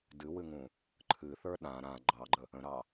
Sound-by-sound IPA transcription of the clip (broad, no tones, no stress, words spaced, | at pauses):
dɨwɨŋũ | ǃʰɨθə˞ ɗã ɾã ɡ͡ǃɑɡ͡ǃə | ə̃ɾɑ